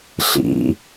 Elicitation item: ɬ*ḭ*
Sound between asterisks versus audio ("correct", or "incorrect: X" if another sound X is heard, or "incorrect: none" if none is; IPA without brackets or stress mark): correct